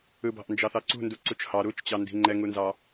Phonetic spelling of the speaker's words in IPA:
ɯ b ɑ̤ ʔ n d͡ʒ ɑ θ ɑ ǀ ṳ n d u ǀ u t͡ʃ h ɑ ɾ u t͡ʃ t͡ɕ ɑ n d i̤ ŋ͡ǃ ɛ ŋ u n z ɑ

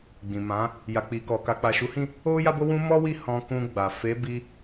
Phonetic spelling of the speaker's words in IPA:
ɡ͡b ĩ˨ m ã˨˦ | j a˨ k͡p i˨ k ɔ˨ k a˨ k͡p a˨ ʃ u˨˦ h ĩ˦˨ | o˦ j a˦ b o˦ w ũ˦ m ɔ˦ w i˦˨ h ɔ̃˧ k ũ˧ ɡ͡b a˨ f e˨˦ b i˧

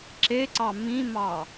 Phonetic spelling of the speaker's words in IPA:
ǁ e ǀ ɑ m ĩ m ɑ

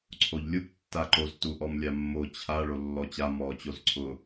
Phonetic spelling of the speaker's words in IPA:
ǀʰ o ʎ lʲ u b tː a ǃ o z t u ʔ ɔ m lʲ a mː o t͡ɕʰ a ɭ o lː ɔ t͡ɕ a m ɔ t͡ɕ o z ǀʰ ʊ

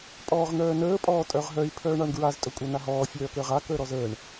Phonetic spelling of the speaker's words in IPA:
pʼ ɔː ʁ n̪ œː n əː pʼ ɔː tʼ œ ʁ ɦ œ i̯ pʰ œː ɳ a ɳ ɡ ɹ a z tʼ ɵ kʷʼ a n a ɦ ɔː fʲ œː k əː ʁ a k əː ɾ ɔ z əː ɳ

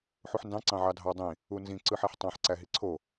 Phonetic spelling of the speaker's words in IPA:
ħ u ħ n d ɑ̃ ǀ ɑ̃ ʕ ɑ dʱ ɑ dˤ ĩ | u n z ĩ ǀ ɯ ħ æ ħ tˤ ɑ̃ ħ ǀ æ ɦ i ǀʰ o

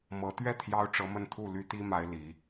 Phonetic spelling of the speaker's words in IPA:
m ɤ˧˥ t̪ ɥ ɛ˥˩ t̪ʰ j ɑ˥ ʊ̯ ʈ͡ʂ ɤ˧˥ m ə˥˧ n t̪ʰ u˥˩ l y˥ t̪ i˥ m a˧˥ ɪ̯ l i˧˥

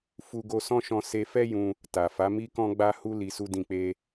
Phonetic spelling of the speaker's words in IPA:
f u˧ ɡ o˧ s ɔ̃˦ ʃ ɔ̃˧ s e˧ f ɛ˦ j ũ˧ | t a˨ f a˨˦ m i˦ k ɔ̃˦ ɡ͡b a˦ h u˦ l i˧ s u˦ d ĩ˦˨ k͡p e˧

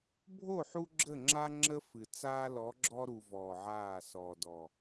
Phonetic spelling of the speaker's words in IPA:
bʱ o˦˨ ħ u˦ ɡ͡ǁ ə˦˨ ŋ͡ǁ a˦ ŋ͡ǁ ə˦ f ɨ˨ t͡s aː˦ l ɔ˨˦ ɡ͡ǁ ɔ˦ ɾ u˨ v ɔː˨ ʕ aː˦˨ s ɔː˨ d ɔ˨

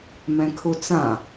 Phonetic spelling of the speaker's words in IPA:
m ɛ̃ kʰ u t͡s ã

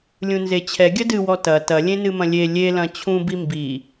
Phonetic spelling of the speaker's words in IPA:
lʲ ũ n z e t͡ɕʰ ɛ ɡʲ ɐ d ɨ w ɔ t ɐ t ɐ lʲ ẽ n ɨ m ɐ̃ lʲ e lʲ e l ɐ̃ t͡ɕʰ ũ b i m b i

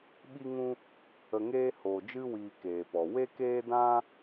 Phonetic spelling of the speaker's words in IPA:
ɓ i˦ ŋ ũ˦ | ə˧ ŋ eː˦ h oː˨ d͡ʒ ɨ˦ w iː˧ k eː˨ p ɔ˨ w e˦ k eː˦ d ã˦

